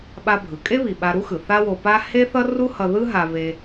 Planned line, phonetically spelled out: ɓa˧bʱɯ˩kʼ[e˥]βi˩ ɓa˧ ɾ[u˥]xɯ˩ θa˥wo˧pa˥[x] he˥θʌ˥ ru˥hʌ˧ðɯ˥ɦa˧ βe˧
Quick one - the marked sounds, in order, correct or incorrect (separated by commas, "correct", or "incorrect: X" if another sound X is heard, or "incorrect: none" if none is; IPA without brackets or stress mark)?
correct, correct, incorrect: none